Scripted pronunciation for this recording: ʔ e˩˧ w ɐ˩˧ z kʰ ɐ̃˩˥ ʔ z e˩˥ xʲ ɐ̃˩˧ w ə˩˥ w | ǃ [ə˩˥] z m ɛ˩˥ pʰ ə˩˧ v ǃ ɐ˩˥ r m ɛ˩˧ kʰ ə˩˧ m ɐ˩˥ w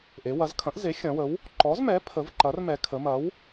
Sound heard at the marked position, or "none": ɔ˩˥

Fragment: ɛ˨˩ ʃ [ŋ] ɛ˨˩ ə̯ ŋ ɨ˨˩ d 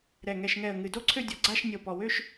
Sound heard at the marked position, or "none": ŋ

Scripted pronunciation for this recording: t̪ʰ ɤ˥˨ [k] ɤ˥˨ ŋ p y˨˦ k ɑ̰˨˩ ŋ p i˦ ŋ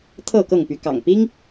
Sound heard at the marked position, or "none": k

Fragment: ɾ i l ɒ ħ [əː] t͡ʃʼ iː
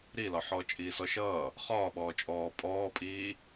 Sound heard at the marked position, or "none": ɔː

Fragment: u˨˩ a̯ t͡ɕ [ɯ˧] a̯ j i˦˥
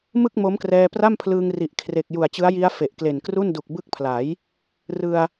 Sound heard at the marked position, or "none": ɯ˦˥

